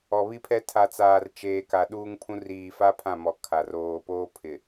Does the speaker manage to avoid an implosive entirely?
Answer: no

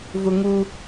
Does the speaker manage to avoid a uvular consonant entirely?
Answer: yes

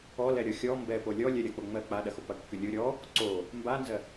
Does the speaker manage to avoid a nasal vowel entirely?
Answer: yes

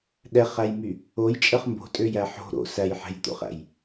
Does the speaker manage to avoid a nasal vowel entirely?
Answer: yes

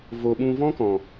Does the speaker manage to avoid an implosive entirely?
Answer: no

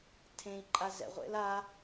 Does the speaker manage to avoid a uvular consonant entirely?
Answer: no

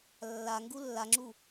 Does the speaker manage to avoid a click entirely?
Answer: no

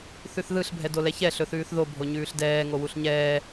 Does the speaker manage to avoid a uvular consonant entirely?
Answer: yes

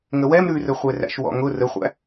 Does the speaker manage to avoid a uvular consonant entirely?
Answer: no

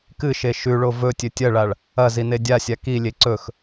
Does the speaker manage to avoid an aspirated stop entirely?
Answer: yes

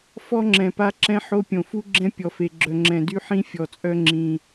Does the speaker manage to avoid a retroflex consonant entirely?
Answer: yes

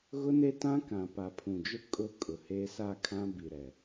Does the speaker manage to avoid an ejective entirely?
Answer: no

